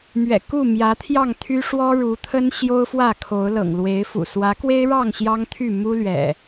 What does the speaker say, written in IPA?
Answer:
m ɥ ɛ̰˨˩ k u˥˨ m j ä˨˦ t̪ʰ j ɑ˥˨ ŋ t̪ʰ y˦ ʂ w ɔ˦ ɻ u˨˦ t̪ʰ ə˦ n ɕ j o˦ ʊ̯ f w ä˥˨ kʰ o˨˦ ʊ̯ l ɤ̰˨˩ ŋ l w e˨˦ ɪ̯ f ṵ˨˩ s w ä˨˦ k w e˦ ɪ̯ ɻ ɑ˥˨ ŋ ɕ j ɑ˦ ŋ t̪ʰ y˥˨ m u˦ l ɥ ɛ̰˨˩

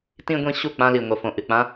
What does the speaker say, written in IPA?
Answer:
t ĩ˧ ɡʷ ĩ˧ ɕ u˦˨ k͡p ã˧ l i˨ ŋʷ ɐ˨ f õ˨ ʔ ɨ˨ k͡p ã˦

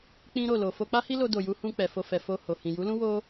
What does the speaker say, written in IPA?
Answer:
k͡p ĩ˦ ɾ o˦˨ l o˨ f o˧ k͡p a˦ h i˦ l o˧ d o˨ j u˨˦ h ũ˧ k͡p ɛ˨ f o˧ f ɛ˨ f o˧ h o˨ h ĩ˨ j u˨˦ l ũ˦ w o˦

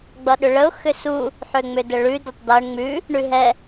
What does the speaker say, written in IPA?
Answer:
ɡ͡b ʌ ɗ ʏ ɭ ə ʊ̯ x ʏ s u | ħ ʏ ŋ͡m ʏ d ə ɭ ʉ d ʏ tˤ d̪ ʌ ɳ ŋ͡m ʉ | ɳ ʉ ɦ ɛ

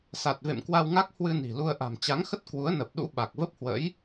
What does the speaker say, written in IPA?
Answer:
s a˨˩ t̚ v ḛ˧˨ m k w a˧ w ŋ a˦˥ k̚ h w ɨ˧ n i̤˨˩ l u˧ ə̯ ʔ a̤˨˩ m t͡ɕ a˨˦ ŋ x ə˦˥ t̚ k w u˨˦ ə̯ n ə˨˩ p̚ ɗ ṵ˧˥ ɓ a˨˩ k̚ v ə˦˥ p̚ h w ə̰˧˥ j

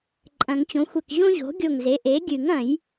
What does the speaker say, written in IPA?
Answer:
ǃʼ ɐ̃˨˩˦ ŋ t͡ɕ õ˩˥ xʷ e˧˩ k ʑ õ˥ ʑ o̤˩˥ ɡʲ o˧˩ ŋ z e˩˥ ʔ e˩˥ ɡʲ ɨ˨˩˦ ŋ ɐ̃˨˩˦ j

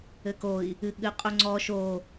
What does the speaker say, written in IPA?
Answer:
ɘ k o i̯ | ɨ ɠ ɨ qʼ u ŋ͡ǀ ɔ ʃ o

